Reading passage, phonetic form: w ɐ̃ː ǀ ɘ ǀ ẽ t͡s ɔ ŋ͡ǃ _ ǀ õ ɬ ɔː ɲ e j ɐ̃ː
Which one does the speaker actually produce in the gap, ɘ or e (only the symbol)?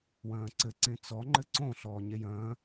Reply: ɘ